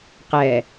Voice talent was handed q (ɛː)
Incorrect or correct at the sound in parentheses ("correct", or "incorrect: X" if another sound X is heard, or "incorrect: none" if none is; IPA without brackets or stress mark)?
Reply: correct